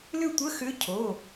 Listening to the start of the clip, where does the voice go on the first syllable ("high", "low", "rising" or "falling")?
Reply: falling